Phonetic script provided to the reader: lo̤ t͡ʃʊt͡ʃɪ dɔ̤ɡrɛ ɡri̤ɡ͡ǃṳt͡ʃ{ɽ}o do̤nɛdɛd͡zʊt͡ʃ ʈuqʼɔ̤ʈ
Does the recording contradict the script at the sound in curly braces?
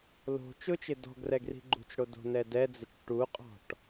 no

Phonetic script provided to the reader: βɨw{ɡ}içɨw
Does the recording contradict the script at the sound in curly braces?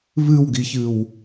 no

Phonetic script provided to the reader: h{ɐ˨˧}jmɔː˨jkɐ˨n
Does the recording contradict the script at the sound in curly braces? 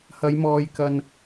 no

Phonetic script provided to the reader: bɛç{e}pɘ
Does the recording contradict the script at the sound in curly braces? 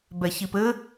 yes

